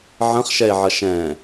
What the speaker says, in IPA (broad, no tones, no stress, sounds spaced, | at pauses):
ʕ ə̃ χ ʃ ɛ e̯ ʕ ʌ ʃ ɛ̃